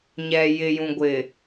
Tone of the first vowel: low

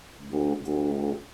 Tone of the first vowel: low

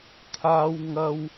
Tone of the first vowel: low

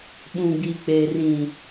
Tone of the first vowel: low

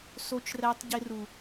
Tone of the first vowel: high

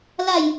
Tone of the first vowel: falling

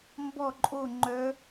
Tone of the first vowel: falling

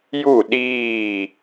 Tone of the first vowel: falling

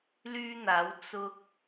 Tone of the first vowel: high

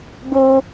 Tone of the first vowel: high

